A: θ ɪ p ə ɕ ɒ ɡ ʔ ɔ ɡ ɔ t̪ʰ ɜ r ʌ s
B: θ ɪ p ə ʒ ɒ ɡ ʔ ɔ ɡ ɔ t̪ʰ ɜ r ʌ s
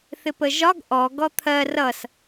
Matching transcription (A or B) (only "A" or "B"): B